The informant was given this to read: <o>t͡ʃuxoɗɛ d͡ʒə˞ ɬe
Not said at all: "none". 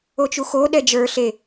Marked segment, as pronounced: o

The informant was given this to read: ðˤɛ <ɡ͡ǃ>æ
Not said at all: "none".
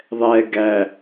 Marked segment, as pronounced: ɡ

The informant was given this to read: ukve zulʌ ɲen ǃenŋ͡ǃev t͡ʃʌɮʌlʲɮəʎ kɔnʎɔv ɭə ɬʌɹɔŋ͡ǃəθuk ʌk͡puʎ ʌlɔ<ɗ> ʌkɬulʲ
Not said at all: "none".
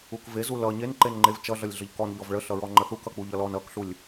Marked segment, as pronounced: n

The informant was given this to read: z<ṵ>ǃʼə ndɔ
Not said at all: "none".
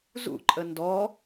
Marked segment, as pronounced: ṵ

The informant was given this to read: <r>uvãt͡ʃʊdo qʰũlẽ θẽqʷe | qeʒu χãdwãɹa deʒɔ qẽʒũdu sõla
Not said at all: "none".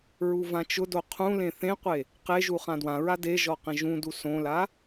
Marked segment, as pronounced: ɹ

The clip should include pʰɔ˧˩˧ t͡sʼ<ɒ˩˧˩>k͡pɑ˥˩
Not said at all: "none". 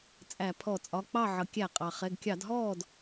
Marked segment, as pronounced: ɒ˩˧˩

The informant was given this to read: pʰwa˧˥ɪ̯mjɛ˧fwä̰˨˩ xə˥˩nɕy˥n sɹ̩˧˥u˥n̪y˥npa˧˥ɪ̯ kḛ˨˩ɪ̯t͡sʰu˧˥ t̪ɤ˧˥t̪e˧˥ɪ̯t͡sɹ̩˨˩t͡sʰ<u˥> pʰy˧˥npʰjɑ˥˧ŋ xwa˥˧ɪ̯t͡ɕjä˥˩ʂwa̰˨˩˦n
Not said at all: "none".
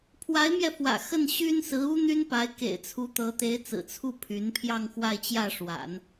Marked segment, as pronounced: u˥˩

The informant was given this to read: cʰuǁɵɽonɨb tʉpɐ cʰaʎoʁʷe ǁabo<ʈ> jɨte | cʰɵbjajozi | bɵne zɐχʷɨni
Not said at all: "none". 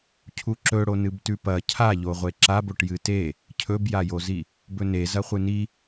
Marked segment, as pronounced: ʈ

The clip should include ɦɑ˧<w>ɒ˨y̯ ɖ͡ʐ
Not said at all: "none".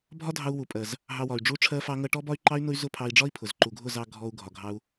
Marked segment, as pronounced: w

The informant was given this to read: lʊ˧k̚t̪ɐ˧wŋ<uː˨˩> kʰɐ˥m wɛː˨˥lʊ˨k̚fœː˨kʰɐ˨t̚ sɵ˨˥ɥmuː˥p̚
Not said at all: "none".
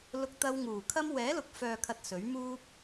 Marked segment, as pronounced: uː˨˩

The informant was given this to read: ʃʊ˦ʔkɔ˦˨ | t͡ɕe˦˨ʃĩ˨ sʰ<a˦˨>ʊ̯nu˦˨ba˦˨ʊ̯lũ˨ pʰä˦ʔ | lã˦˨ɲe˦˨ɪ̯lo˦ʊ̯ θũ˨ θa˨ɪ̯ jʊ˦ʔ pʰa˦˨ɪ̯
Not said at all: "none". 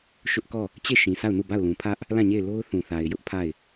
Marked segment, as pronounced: a˦˨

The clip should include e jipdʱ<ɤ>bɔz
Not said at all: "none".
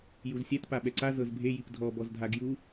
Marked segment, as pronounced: ɔ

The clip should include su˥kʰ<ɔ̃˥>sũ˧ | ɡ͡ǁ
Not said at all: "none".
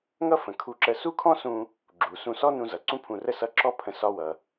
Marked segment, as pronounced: ɔ̃˥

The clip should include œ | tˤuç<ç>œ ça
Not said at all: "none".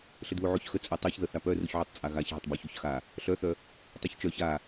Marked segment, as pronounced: t͡ʃ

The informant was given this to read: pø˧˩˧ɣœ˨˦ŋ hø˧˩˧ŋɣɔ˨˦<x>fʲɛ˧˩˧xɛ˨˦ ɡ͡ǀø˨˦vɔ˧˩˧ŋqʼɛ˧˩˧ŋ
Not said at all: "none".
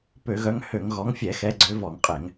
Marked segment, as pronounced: ŋ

